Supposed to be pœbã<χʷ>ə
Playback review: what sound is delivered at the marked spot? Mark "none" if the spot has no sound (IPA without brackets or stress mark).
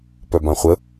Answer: χʷ